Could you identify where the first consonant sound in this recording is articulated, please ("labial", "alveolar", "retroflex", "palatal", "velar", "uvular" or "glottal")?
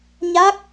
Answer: palatal